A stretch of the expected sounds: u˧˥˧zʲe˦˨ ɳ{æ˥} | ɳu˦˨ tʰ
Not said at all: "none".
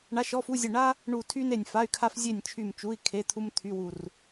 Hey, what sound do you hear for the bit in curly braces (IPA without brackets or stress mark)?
a˥